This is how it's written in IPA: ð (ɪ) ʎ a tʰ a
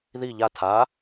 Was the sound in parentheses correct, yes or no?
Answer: no